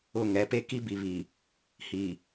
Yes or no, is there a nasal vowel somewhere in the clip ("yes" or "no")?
no